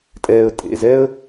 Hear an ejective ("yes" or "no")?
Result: yes